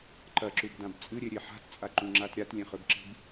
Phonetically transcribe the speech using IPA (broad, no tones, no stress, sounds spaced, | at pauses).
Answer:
ǃ ɐ ǁ u b d ã b t͡sʼ ɨ ɾʲ e ɾʲ e ħ a̤ t t͡sʼ a ǃ ũ ŋ͡ǁ a t ɾʲ a t lʲ ẽ χ ɵ b ǁ i̤ b